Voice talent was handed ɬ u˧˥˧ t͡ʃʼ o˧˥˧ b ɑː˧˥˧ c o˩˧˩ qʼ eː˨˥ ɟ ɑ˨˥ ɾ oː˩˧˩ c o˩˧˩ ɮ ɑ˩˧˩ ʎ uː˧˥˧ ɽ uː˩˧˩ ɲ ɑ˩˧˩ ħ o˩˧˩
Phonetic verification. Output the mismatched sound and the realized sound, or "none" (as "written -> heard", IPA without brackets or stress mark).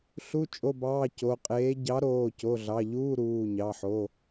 ɽ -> ɾ